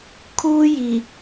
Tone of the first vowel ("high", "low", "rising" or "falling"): high